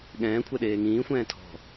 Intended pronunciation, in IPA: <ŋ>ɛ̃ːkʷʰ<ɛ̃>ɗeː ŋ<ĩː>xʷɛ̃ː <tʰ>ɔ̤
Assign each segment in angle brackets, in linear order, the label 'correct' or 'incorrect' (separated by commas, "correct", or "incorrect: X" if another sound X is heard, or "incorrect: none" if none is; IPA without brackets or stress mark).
incorrect: ɠ, incorrect: ɛ, correct, correct